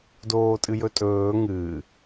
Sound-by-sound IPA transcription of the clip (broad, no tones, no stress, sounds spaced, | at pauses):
d oː tʼ ɨ j ɵ tʼ ɵː ŋ ɨː